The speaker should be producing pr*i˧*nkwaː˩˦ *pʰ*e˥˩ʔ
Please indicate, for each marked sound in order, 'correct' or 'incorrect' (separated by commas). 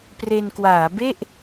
incorrect, incorrect